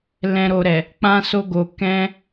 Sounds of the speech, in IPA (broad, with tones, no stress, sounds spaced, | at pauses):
l ɛ̃˨ ɾ o˨ ɾ ɛ˨ | k͡p ã˧ s o˧ ɡ o˨ k ɛ̃˧